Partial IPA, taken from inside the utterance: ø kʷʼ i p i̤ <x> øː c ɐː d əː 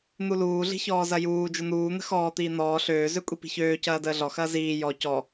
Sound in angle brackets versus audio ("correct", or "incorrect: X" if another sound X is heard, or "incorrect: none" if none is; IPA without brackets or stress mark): incorrect: ç